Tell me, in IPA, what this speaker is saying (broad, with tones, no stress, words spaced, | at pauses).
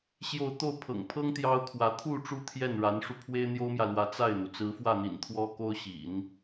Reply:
ɕjo˥˧ʊ̯ t̪o˥˩ʊ̯pʰɤ̰˨˩ŋpʰɤ˥ŋ t̪jɑ˥ʊ̯kʰwä˧˥ t̪ʰu˥˧ ʈ͡ʂu˥˧t̪ʰjɛ˥˩nɻa˧˥nʂu˧ pʰwe˥ɪ̯n̪jo˥ʊ̯mjä˨lwä˧˥ t͡sa˥˩ɪ̯n̪u˩ t͡sɹ̩˧˥fwä˥˩n̪ḭ˨˩n t̪ʰwɔ˥ko˥ʊ̯ɕḭ˨˩˦n